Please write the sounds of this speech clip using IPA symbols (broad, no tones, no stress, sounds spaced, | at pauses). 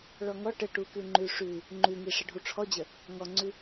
ɭ ɔ ŋ ɔ ʈ ə ʈ u k ʉ ŋ͡ǃ ʉ ʂ ʉ | ŋ͡ǃ ʉ ŋ i ʂ ə ɖʱ u ʈ͡ʂʰ ɔ d͡ʑ ə | ŋ ɔ ŋ͡ǀ ʉ